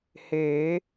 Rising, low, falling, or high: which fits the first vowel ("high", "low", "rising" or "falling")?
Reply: rising